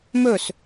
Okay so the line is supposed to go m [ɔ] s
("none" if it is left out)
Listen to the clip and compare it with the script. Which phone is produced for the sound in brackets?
ɵ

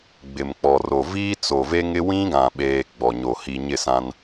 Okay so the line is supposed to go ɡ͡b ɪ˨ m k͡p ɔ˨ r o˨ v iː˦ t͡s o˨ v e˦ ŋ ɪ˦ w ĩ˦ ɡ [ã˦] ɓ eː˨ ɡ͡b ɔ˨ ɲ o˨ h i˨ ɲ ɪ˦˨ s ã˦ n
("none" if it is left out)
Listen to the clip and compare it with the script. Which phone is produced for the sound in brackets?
ã˨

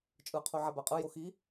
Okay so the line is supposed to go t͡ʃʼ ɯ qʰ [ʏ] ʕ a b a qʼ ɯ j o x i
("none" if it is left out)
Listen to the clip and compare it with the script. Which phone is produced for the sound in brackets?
u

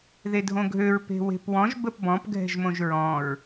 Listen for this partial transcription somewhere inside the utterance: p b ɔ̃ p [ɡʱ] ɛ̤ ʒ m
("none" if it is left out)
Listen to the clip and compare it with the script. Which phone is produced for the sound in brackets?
ɡʱ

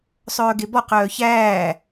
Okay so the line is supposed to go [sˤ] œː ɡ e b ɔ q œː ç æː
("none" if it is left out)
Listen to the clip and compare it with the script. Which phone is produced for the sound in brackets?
sˤ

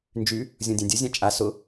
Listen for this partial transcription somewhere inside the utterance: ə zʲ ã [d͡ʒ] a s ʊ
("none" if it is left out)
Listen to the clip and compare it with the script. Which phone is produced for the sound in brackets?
t͡ʃʼ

